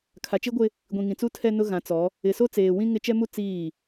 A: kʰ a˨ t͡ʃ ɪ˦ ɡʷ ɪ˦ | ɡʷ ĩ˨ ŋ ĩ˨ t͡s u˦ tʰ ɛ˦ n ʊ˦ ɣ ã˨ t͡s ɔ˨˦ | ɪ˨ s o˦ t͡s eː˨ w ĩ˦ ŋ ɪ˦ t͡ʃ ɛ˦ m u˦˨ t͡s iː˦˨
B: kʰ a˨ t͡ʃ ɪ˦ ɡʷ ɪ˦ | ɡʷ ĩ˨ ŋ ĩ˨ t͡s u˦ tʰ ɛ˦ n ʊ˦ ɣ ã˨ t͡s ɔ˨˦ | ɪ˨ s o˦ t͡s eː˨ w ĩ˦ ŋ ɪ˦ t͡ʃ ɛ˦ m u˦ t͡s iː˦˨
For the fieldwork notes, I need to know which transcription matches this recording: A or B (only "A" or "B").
B